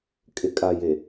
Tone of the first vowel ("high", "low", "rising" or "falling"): low